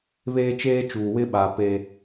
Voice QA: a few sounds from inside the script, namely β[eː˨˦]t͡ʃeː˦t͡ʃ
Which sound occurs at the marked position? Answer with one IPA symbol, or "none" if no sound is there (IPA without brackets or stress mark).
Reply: eː˦